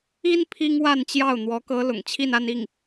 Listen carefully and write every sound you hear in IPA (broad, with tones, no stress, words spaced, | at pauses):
i˥n pʰi˥ŋwa˥˧nt͡ɕjɑ˥˩ʊ̯ n̪wɔ˧˥kɤ˧˥ lʊ̰˨˩ŋt͡ɕʰi˥˧na˥˧ni˥˩ŋ